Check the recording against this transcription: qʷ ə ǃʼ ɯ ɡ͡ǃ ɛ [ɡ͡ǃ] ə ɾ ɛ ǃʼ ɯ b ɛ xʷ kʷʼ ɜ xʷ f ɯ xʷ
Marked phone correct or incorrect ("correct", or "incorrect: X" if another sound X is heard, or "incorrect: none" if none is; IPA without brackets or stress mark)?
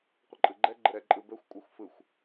correct